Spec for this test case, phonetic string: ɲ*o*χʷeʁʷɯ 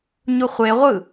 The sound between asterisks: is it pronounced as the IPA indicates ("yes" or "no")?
no